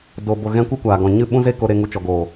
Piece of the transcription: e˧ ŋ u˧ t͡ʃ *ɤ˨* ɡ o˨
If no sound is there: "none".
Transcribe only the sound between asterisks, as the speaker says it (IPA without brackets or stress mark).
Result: ɔ˨